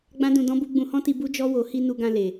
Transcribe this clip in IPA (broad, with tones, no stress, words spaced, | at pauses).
ɡ͡bã˦dũ˧ dɔ̃˦bu˦ ɡ͡bũ˧hɔ̃˦ti˧ bu˦d͡ʒɔ˦ wo˧ hi˧ nu˧ɡã˧le˨